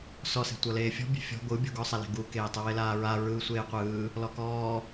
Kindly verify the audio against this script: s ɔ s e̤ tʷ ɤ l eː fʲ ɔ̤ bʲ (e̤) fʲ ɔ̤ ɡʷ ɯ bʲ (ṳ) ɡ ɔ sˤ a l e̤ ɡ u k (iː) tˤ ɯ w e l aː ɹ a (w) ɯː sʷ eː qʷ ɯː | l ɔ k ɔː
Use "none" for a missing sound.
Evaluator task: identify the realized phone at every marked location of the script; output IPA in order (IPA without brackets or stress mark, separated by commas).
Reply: e̤, o̤, eː, ɹ